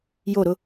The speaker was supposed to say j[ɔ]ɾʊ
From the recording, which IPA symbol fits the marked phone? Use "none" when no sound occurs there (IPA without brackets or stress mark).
o